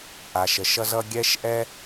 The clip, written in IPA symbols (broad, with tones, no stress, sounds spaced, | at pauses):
ʔ a˨ ʃ ə˨ ʃ ʌ˥ z ʌ˥ ɡʲ ɛ˥ ʃ ʔ ɛ˥